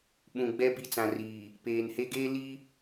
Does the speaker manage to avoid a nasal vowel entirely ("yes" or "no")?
no